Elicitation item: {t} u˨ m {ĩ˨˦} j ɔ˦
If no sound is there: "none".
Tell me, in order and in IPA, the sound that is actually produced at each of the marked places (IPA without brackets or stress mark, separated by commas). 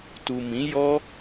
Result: t, ĩ˨˦